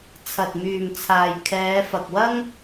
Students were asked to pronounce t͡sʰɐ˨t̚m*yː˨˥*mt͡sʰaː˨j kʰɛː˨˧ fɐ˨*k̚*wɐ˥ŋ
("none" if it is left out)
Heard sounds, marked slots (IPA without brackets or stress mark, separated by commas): yː˨, k̚